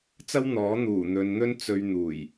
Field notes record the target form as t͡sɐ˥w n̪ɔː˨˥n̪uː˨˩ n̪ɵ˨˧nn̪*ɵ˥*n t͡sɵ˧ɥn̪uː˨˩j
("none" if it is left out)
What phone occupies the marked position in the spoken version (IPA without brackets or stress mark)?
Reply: ɵ˥